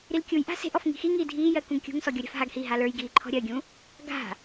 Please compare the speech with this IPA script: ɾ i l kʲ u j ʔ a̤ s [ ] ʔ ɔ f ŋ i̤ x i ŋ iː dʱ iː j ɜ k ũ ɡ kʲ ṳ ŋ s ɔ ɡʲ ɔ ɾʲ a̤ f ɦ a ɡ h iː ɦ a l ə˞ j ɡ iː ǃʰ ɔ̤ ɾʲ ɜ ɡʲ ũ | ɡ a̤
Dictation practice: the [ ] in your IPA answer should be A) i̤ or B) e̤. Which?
B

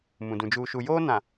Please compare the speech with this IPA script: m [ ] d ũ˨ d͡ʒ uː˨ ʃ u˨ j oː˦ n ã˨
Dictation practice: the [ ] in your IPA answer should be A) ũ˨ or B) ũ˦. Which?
A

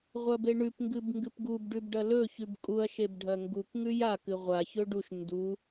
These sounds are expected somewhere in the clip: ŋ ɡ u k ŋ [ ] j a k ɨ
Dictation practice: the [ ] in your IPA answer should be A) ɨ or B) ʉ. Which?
B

